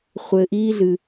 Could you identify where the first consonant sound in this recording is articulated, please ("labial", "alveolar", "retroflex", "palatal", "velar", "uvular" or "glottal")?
uvular